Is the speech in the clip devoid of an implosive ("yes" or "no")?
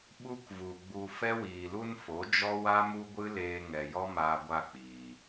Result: no